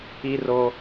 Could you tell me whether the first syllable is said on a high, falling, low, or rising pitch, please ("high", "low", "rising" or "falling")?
high